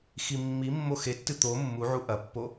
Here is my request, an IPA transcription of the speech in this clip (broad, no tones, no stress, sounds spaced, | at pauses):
x i mː i mː o x e tː ɨ t̪ o mː u ʕ u ʔ ɐ pː o